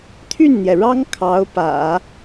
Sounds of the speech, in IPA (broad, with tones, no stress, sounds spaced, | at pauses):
t̪ʰ y˥˩ n n̪ j ɛ˩ ɻ ɑ˥ ŋ kʰ ɑ˧˥ ʊ̯ p ä̰˨˩˦